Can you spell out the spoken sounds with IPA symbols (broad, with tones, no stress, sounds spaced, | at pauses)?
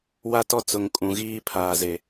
w a˦ t ɔ˦ t͡s ʊ˨ ŋ kʼ ũ˨ ɣ iː˦ pʰ aː˨ z e˨